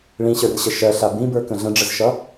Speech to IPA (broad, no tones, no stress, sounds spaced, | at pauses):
ɭ ĩ ɕ ə˞ r ɕ ə ʃ ɜ ɬ a b ĩ b ə˞ k ə̃ ɮ ə̃ ɖ͡ʐ ə z ʃ ʌ